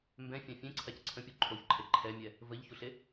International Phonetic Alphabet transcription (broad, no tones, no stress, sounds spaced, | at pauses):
m b ɛ̃ fʲ ã fʲ ẽ ǀʰ a c ǀʰ ə̃ pʲ u ǃʰ o ç ǃʰ e ǃʰ ɛ mʲ ɛ | v ə ʎ ç u ɬ e